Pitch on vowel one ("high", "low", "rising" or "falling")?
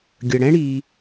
low